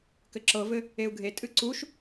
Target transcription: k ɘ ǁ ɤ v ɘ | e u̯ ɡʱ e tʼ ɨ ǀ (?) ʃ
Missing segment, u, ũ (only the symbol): u